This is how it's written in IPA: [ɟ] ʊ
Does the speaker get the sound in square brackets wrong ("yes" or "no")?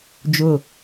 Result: yes